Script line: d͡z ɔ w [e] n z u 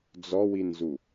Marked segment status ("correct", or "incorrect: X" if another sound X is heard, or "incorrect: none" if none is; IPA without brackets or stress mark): incorrect: i